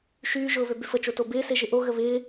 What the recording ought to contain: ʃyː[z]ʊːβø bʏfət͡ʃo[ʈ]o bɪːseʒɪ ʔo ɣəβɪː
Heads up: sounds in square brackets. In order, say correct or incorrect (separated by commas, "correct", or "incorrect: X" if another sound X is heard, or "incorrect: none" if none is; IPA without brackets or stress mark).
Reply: incorrect: ʒ, incorrect: t